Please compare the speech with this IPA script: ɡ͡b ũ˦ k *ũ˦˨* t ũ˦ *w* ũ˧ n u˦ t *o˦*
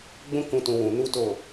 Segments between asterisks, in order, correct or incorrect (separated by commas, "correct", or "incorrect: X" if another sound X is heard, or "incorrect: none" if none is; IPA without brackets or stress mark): incorrect: ũ˧, correct, incorrect: o˦˨